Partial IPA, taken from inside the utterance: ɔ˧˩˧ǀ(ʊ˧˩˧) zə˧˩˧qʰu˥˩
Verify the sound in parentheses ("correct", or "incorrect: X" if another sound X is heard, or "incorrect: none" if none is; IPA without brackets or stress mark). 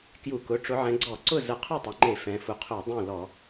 incorrect: ʊ˥˩